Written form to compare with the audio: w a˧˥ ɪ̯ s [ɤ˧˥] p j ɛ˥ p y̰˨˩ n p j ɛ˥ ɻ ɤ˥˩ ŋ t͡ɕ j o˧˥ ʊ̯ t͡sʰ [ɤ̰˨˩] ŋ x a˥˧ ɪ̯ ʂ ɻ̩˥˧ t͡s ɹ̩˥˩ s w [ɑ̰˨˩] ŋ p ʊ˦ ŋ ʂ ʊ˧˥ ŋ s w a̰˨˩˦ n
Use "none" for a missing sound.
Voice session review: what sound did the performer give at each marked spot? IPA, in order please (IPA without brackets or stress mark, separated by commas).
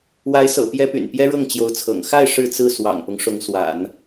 ɤ̰˨˩, ɤ̰˨˩, ɑ̰˨˩